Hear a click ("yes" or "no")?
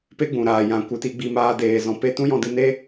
no